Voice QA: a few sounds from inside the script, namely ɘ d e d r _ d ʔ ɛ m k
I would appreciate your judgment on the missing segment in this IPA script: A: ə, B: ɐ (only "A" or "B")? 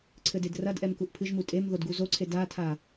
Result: B